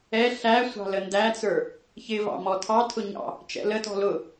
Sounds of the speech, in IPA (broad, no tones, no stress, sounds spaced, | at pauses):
ɛ ɬ æ sʷ ɑ̤ l ə n d æ t͡s ə˞ | ç ɪ v ɑ̰ m ɔ tʰ ɑ tʰ ʊ ɲ ɑ̰ | t͡ʃ ɛ̰ l ə t ɔ̤ l ʊ